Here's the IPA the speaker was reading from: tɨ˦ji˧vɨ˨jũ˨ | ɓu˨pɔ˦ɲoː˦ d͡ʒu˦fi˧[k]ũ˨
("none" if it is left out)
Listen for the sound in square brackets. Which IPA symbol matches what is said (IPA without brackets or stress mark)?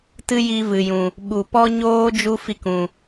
k